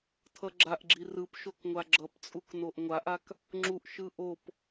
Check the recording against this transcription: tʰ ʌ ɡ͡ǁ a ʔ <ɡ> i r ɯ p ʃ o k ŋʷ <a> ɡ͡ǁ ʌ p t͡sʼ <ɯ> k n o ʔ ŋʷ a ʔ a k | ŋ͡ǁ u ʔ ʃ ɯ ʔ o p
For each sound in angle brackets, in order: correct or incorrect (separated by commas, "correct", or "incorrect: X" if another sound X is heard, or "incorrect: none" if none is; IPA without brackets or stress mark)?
incorrect: ɡ͡ǁ, correct, incorrect: u